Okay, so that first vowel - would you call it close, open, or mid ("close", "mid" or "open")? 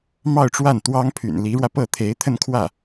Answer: open